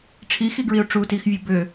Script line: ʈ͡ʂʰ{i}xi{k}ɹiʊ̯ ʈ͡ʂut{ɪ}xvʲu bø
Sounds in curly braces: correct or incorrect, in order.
correct, incorrect: ɡ, incorrect: i

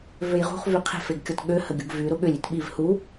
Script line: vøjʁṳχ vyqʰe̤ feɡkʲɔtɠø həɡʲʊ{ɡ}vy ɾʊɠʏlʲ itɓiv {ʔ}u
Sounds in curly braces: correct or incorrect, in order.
correct, incorrect: h

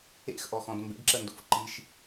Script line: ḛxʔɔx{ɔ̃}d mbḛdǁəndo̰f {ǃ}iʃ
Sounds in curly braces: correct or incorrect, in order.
correct, correct

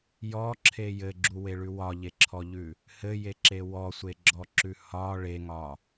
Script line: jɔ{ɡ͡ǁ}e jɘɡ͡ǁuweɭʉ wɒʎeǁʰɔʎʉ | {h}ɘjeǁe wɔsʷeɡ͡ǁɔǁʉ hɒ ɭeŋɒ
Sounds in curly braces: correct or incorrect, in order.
incorrect: ǁʰ, correct

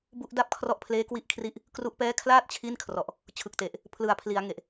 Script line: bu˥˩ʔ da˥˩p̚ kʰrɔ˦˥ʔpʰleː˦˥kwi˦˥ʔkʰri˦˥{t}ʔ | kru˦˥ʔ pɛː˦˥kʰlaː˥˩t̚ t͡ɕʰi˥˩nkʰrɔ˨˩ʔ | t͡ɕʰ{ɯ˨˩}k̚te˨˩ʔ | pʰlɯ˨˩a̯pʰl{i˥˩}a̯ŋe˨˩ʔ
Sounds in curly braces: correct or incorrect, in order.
incorrect: none, correct, incorrect: i˩˦

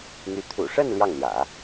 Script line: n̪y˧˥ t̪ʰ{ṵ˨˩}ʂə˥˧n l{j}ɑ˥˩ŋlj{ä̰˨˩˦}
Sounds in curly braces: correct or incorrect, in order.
correct, correct, correct

